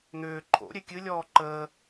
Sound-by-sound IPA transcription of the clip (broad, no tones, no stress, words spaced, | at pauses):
n̪ʏː ǃʰo̰ ɾʲekʲɨ lʲɔːǃəː